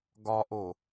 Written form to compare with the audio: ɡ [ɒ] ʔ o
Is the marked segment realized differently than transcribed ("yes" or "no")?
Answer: no